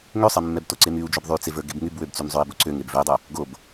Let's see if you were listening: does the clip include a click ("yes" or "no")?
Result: yes